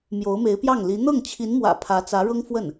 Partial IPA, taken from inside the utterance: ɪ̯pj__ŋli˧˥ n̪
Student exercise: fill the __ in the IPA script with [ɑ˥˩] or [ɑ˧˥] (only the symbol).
ɑ˥˩